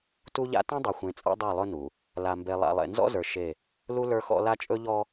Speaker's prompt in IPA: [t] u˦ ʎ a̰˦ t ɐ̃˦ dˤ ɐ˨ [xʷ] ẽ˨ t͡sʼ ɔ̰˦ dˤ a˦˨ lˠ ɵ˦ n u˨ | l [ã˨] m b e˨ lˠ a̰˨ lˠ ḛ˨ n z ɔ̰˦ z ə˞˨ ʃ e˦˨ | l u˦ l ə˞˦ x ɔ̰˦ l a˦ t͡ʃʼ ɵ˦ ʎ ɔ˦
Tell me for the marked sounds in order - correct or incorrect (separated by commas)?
correct, correct, incorrect